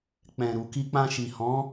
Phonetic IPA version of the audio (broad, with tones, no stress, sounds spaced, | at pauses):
k͡p ɛ̃˨ ɾ u˨ k i˧ k͡p ã˧ ʃ i˨ h ɔ̃˨˦